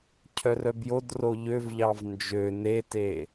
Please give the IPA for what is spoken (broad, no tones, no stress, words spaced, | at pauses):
cʰœrœbjodro ʎøvʎɑv nd͡ʒø nete